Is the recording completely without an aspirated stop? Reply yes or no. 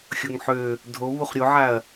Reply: yes